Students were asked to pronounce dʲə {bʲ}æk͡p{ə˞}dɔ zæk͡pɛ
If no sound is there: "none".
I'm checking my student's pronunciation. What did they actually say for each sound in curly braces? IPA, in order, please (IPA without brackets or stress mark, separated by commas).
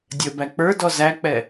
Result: b, ə˞